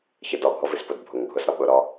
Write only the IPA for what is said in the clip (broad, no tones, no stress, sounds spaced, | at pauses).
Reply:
ç ə d ɔ ɡʱ ɔ v i s p ʊ d bʱ ʊ ŋ ɡʱ ʊ s ɾ ɔ ɓ ʊ ɾ ɔ